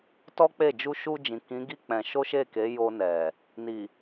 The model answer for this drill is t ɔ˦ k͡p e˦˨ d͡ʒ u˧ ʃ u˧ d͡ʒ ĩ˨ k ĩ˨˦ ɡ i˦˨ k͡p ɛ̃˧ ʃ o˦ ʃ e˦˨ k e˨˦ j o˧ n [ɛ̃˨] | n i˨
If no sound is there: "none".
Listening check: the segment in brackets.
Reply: ɛ˨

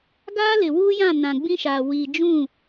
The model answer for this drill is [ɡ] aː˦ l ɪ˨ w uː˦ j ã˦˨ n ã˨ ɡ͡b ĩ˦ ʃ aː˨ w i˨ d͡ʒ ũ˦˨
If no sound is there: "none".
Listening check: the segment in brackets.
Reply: ɡ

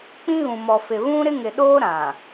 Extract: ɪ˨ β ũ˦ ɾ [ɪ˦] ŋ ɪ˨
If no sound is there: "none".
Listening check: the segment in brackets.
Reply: ɪ˦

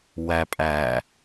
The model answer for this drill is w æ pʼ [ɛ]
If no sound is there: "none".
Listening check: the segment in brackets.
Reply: æ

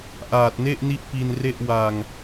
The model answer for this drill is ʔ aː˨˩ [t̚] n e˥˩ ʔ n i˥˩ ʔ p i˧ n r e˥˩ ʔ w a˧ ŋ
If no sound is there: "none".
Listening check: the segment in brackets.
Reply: t̚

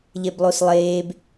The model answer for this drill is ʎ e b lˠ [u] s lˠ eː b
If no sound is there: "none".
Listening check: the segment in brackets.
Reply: u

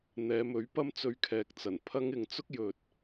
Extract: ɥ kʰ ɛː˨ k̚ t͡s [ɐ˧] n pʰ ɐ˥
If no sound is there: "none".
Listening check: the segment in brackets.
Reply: ɐ˨˩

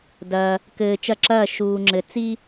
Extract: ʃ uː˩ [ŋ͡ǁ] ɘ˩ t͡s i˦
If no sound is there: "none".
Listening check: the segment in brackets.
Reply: ŋ͡ǁ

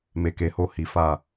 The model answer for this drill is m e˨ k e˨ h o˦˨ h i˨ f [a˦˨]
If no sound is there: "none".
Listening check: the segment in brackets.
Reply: a˦˨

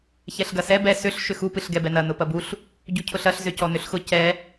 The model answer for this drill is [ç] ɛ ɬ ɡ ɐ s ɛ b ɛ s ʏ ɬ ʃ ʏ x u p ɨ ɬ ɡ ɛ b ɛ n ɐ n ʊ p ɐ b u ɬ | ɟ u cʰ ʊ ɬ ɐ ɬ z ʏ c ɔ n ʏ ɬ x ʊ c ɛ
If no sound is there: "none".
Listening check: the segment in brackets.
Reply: ç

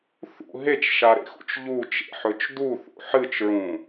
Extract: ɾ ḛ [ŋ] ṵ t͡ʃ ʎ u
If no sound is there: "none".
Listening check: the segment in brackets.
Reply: x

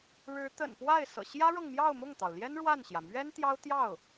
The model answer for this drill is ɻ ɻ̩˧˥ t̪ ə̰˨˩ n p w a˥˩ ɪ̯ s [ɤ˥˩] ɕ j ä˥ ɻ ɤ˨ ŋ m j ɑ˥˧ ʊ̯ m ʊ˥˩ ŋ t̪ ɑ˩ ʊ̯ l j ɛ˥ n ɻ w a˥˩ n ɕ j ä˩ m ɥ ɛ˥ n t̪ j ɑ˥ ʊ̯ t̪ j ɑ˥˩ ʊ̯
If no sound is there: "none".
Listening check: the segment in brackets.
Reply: ɤ̰˨˩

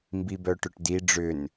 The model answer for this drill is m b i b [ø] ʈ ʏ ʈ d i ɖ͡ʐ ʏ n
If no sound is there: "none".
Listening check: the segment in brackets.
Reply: œ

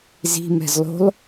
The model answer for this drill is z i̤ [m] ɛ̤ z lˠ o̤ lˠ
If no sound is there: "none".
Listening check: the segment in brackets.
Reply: m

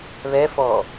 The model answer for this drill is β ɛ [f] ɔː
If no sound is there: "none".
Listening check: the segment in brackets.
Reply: f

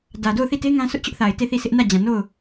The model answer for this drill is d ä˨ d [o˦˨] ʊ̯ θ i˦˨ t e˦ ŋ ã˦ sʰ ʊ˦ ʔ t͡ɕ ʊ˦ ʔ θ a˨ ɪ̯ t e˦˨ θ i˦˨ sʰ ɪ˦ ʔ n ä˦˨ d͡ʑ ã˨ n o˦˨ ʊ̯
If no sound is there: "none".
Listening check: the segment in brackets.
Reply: o˦˨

